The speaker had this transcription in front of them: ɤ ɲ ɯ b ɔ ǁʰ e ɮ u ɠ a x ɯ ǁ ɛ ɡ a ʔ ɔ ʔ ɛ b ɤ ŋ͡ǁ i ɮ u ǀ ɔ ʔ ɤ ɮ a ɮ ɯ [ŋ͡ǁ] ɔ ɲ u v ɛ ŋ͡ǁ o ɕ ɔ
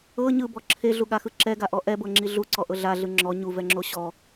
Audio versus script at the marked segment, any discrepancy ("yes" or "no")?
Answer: no